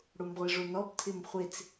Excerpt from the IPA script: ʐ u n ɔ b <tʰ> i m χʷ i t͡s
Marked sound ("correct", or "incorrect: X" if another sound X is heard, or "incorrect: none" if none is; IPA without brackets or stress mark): correct